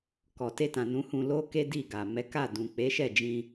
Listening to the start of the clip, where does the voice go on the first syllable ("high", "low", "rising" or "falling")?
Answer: low